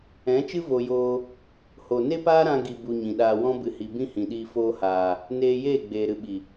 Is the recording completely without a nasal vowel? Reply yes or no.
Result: no